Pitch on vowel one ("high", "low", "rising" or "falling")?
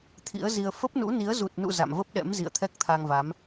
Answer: rising